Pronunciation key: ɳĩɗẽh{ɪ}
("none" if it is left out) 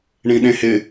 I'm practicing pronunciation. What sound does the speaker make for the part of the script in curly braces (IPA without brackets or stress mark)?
ɪ